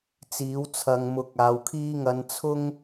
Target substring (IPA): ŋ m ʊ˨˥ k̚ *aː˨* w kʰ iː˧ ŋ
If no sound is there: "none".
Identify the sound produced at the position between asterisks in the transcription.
aː˨˧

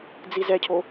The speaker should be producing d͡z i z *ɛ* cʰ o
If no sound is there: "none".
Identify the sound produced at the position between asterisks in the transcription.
ɛ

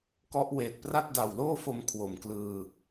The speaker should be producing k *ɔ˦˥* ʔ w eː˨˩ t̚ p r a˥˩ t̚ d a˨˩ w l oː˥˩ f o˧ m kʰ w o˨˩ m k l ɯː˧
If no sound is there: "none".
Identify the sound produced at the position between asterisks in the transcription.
ɔ˦˥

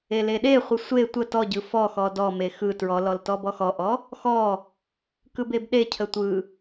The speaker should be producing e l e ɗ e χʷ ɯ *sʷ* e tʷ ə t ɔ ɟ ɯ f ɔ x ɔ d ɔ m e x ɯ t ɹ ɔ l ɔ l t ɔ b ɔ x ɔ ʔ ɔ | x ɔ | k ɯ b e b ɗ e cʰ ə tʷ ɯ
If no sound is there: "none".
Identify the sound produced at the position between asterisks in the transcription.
sʷ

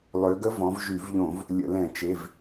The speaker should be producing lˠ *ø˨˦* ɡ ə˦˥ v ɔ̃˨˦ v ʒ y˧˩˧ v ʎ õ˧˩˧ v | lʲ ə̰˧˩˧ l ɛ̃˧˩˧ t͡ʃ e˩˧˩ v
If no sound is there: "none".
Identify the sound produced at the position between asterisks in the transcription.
ø˨˦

